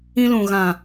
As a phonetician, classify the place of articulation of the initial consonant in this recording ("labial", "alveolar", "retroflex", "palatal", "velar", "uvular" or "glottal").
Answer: alveolar